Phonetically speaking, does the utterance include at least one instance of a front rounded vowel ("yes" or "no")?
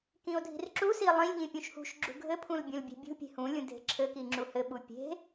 no